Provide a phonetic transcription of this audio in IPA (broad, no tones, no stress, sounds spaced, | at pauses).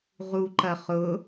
ʁ u ǃ ɐ χ ʊ